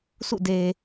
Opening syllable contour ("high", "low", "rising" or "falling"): falling